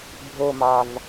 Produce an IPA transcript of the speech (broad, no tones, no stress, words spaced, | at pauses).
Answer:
bʱomɑv